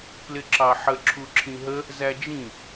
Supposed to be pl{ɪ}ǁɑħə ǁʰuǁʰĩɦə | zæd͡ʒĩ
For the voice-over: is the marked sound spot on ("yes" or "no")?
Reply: yes